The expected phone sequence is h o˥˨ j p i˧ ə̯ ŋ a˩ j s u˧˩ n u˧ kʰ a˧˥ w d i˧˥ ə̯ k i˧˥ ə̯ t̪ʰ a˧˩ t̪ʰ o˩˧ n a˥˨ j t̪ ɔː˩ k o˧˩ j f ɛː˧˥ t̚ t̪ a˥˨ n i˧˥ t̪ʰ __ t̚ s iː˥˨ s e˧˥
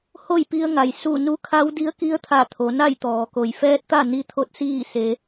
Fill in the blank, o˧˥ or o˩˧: o˧˥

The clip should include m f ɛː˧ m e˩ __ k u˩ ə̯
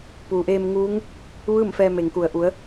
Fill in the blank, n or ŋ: ŋ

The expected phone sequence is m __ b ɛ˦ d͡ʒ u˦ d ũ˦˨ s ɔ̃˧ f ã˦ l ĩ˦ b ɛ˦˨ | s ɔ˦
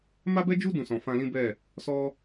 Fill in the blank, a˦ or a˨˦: a˦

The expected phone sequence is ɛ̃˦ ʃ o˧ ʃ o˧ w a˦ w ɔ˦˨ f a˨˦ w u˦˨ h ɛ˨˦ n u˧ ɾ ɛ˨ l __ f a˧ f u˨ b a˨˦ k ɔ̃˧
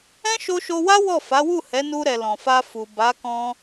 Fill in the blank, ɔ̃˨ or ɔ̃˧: ɔ̃˨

